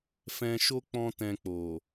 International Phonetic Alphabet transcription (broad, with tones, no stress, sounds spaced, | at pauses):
f ɛ̃˧ ʃ o˦ k͡p ɔ̃˦ t ɛ̃˧ k͡p o˨